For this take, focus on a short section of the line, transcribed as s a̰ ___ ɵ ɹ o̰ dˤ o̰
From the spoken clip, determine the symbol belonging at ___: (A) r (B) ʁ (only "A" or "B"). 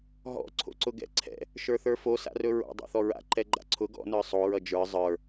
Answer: A